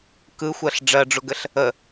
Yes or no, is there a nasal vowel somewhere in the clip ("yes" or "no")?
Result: no